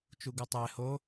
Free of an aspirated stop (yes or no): yes